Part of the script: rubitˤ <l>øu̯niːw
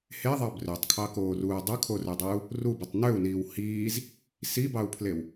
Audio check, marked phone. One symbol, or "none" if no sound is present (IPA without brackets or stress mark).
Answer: n